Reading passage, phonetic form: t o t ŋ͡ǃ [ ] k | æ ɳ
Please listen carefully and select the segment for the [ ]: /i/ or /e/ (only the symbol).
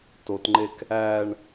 e